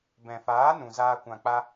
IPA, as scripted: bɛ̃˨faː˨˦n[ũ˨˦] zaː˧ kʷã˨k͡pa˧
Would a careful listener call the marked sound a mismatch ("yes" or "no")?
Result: yes